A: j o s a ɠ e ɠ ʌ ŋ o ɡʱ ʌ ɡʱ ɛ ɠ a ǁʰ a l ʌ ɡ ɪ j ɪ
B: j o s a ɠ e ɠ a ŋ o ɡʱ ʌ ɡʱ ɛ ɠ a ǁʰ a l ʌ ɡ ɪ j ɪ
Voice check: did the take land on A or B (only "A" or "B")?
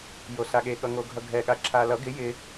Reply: A